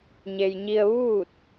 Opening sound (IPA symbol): ɲ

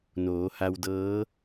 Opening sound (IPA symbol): n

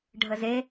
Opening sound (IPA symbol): ɖʱ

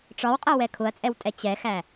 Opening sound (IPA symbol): ʈ͡ʂ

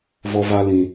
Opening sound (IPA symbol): v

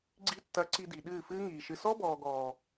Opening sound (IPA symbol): ɡ͡ǀ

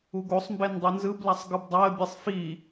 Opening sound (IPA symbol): u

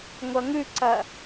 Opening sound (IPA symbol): ŋʷ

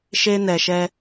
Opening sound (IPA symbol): ʃ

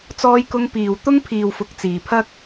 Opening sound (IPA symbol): t͡s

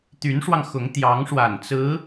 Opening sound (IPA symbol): t̪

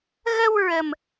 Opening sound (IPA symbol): ɣ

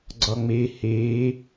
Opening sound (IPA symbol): ɡ͡ǀ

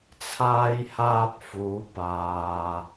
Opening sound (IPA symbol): t͡sʰ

